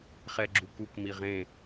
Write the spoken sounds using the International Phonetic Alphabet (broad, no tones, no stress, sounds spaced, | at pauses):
χ ɛ ɡ͡ǁ u k u k m i ʁ ẽ